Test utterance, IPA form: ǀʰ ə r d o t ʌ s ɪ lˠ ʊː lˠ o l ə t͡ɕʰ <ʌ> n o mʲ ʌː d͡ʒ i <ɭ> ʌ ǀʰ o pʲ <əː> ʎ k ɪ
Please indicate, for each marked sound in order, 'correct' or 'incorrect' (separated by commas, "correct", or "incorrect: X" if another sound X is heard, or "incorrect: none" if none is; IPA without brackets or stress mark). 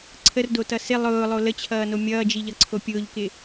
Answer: incorrect: ʌː, incorrect: ʎ, incorrect: ʊː